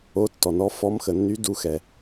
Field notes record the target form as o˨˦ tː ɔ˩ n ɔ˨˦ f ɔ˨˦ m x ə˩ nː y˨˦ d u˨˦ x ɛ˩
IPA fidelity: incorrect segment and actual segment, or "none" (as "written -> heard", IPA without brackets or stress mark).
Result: none